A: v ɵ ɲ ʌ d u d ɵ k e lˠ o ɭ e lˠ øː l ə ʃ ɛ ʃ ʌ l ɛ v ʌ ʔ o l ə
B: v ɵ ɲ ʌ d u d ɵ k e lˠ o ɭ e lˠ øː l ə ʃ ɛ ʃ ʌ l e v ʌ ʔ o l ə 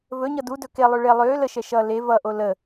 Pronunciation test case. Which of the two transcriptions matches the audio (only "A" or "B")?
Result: B